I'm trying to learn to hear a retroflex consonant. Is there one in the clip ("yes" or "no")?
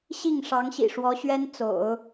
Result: yes